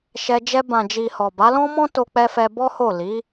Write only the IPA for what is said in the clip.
ʃɛ˧ d͡ʒɛ˧bã˨d͡ʒi˨ hɔ˨ba˨˦lɔ̃˦mɔ̃˦ to˧k͡pɛ˧ fɛ˧ bɔ˦ ho˦˨ li˨˦

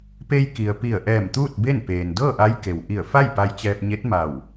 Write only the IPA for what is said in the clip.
pe˧j ki˩ə̯pi˧˩ə̯ʔɛː˧˩m t̪uː˥˨t̚be˥˨npeː˩n dɤː˥˨ʔa˧˥j ke˩wʔi˧˩ə̯fa˥˨j pa˧jt͡ɕɛː˧p̚ɲe˧˥t̚ ma˧˩w

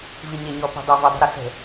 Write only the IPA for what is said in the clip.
viɲeɲɔpə̤ dˤavidˤə̤ ɾusə̤

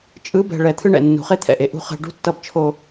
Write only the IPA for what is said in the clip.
t͡ʃʼɯ˨˦bɛ̤˨ɭɛ˨ t̪ʰɯ˦ɳɛ̰˨ nːṳ˨χe˦t̪ʰɛ̰˨ʔe˨ ʔṳ˦ χɛ̤˦ ɖṳ˦tːʌ˦˨bt͡ʃʰo˦

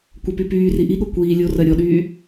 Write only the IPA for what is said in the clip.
kʷəpy pyːri ʔiɠo kʷiː lʲorɜ ɾʲɔɗyː

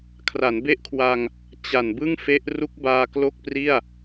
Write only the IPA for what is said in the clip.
kʰra˩˦nbe˦˥ʔkʰwa˧ŋ | t͡ɕa˨˩nbɯ˥˩ŋfe˦˥ʔ ru˦˥k̚baː˧ klo˥˩k̚pri˥˩a̯

